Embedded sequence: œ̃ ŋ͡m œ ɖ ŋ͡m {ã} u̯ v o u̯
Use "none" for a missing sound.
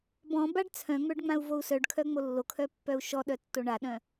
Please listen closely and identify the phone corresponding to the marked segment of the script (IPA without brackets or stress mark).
ã